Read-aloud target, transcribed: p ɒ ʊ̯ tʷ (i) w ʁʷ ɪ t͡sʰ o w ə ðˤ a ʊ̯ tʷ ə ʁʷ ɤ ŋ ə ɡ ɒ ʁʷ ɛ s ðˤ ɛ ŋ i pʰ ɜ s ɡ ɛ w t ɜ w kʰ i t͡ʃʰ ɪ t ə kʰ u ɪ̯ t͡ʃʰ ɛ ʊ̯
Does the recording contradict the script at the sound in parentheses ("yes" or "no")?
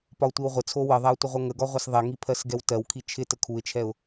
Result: no